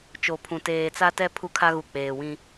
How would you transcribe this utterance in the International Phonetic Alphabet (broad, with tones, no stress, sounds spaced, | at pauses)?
t͡ʃ o˨ pʰ ũ˨ t eː˨ t͡s a˦ t ɛ˦ pʰ u˦ kʰ a˦ ɣ u˨ k͡p eː˨ w ĩ˦